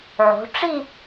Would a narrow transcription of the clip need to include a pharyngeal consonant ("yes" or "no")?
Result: yes